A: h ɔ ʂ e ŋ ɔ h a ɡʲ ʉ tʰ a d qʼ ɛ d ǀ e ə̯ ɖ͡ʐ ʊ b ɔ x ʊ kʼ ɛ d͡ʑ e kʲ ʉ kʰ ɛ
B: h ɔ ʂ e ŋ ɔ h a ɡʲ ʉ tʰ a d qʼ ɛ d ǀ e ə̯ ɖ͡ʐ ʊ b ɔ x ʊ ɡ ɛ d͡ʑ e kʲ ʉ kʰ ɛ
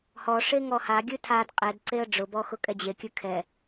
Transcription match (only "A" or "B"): A